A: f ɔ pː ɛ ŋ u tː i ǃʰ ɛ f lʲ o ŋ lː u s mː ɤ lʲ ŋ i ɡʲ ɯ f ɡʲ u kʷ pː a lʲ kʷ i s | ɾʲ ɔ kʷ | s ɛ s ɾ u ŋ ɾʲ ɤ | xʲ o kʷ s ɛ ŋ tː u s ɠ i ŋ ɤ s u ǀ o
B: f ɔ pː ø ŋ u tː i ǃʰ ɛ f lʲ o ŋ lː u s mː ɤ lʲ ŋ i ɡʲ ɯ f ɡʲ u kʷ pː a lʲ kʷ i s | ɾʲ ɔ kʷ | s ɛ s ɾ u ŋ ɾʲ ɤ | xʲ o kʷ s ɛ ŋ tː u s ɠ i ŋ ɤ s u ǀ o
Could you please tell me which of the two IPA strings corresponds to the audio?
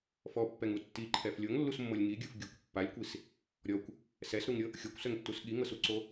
A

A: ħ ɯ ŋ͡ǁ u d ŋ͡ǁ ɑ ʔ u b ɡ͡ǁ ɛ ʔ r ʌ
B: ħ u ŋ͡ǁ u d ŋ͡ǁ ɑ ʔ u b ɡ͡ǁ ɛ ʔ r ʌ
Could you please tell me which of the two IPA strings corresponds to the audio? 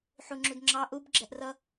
B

